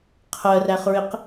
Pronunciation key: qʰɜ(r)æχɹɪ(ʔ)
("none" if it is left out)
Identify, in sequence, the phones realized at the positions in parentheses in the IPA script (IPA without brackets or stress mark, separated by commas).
r, q